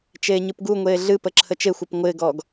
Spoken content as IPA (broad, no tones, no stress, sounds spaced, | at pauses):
t͡ʃ eː ɲ ɨ p ɡ u ŋʷ eː ɮ ɨ p ə ǁʰ ə t͡ʃ e xʷ ɤ p ŋʷ ɪː ɡ ɔː ɡ